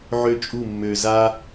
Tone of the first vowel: high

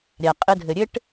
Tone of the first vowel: low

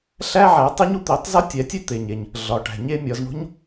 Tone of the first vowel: high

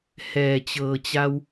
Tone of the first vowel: low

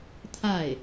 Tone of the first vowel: falling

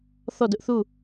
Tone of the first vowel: falling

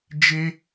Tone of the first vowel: high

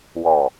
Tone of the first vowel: low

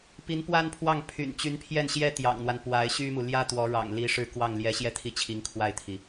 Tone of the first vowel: rising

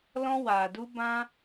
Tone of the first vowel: high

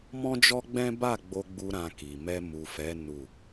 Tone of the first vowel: high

